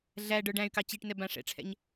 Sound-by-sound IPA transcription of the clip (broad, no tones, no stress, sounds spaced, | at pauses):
ɮ æ ɖ ə˞ ɖ æ̃ y̯ k ɑ t͡ɕ i ʈ n ɛ b ã ʂ ɛ̰ ʈ͡ʂʰ ɛ̰ ɲ